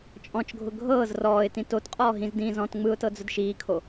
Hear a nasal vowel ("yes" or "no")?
yes